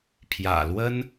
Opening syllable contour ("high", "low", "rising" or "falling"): low